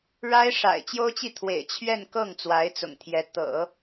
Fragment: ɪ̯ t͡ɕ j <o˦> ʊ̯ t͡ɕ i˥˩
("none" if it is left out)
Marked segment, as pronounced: o˥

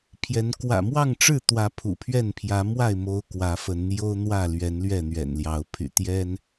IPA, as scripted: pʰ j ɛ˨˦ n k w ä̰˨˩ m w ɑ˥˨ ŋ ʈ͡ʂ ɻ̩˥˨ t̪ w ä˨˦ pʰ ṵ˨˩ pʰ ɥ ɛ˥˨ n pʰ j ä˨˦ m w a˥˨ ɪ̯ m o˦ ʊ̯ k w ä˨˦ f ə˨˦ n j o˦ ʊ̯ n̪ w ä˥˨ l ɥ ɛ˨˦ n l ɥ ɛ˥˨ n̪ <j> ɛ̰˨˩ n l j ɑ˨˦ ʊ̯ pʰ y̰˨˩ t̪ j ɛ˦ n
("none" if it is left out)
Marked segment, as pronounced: ɥ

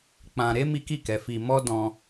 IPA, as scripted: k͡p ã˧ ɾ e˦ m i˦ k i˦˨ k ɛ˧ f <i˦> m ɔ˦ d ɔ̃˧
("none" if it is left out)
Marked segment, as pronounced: i˧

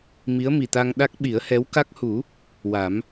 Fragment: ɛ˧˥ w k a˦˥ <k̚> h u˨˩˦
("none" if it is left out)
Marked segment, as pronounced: k̚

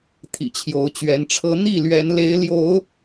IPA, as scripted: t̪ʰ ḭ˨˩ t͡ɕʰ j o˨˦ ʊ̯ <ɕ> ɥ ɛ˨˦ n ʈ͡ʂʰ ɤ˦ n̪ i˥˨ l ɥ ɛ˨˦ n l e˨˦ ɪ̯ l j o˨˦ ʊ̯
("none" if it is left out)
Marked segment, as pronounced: t͡ɕ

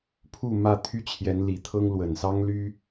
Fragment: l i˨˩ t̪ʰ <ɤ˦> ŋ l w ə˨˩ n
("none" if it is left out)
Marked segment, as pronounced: ɤ˦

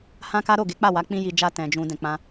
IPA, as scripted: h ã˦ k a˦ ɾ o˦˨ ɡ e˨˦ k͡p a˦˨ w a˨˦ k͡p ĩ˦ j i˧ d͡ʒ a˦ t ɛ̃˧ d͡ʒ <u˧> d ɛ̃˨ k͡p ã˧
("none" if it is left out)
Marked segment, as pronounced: ũ˧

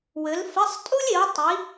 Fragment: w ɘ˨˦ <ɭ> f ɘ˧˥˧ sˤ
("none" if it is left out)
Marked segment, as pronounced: l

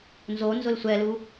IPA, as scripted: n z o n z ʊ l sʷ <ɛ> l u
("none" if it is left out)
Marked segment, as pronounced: ɛ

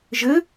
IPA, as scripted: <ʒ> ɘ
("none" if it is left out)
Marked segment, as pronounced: ʒ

